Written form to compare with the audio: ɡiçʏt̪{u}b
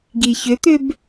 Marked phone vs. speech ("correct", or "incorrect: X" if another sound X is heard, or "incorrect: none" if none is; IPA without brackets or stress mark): incorrect: ʏ